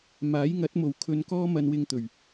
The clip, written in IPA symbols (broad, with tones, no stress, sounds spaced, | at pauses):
m aː˨˥ j ŋ ɐ˨˥ t̚ m o˨ w kʰ ɵ˧ n k ɔː˥ m ɐ˧ n w ɪ˧ ŋ t̪ ɵ˨˩ ɥ